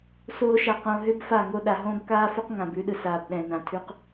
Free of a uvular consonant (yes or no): no